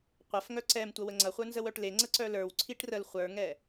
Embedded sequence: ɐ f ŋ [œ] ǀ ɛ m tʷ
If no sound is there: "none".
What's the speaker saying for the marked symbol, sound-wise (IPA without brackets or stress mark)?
œ